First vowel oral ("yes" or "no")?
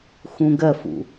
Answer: no